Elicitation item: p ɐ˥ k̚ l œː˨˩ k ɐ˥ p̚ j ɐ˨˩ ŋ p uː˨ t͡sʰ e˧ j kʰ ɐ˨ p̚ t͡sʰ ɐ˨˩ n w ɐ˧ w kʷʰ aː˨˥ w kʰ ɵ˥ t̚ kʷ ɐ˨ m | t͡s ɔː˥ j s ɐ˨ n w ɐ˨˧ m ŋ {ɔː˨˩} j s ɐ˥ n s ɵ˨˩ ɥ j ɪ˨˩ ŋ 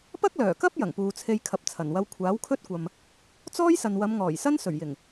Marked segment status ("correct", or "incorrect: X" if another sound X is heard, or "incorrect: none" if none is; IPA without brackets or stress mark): correct